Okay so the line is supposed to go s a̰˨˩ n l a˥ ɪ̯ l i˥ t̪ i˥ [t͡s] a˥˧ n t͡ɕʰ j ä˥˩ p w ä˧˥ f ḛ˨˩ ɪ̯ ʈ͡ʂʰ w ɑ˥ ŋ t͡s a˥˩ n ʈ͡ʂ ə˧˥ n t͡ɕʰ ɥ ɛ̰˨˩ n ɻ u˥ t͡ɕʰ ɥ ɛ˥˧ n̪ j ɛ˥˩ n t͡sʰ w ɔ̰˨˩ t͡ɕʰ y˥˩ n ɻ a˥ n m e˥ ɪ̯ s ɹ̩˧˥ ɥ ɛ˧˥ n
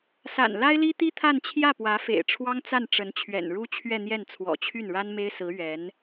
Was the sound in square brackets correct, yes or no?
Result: no